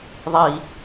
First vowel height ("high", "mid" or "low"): high